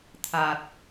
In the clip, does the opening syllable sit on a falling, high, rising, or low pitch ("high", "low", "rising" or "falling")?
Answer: low